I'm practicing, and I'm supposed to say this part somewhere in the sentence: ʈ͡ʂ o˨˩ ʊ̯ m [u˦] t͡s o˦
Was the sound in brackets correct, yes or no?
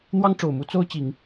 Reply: yes